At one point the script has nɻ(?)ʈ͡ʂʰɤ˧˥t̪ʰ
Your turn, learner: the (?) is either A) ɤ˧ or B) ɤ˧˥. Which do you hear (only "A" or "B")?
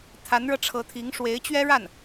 A